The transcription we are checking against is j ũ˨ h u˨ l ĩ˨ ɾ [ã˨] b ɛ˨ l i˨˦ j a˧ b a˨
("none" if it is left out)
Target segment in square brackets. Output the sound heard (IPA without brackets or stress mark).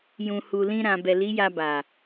ã˨